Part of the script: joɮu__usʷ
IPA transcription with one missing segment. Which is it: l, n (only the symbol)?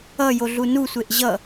n